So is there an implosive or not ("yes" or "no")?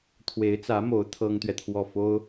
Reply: no